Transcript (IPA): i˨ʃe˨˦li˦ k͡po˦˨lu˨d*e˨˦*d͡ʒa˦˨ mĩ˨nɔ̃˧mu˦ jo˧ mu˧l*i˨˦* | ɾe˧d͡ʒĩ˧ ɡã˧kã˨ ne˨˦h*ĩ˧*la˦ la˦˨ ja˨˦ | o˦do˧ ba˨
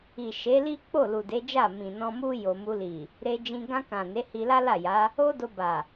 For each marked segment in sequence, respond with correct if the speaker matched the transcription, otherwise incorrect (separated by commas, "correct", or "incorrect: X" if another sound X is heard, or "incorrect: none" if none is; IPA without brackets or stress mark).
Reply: correct, incorrect: i˨, incorrect: i˧